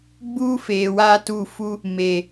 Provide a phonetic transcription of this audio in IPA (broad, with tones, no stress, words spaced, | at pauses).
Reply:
ɡ͡buː˦feː˨waː˦tu˦˨ fu˦ | me˨